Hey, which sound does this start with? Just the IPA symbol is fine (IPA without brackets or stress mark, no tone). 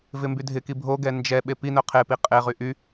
v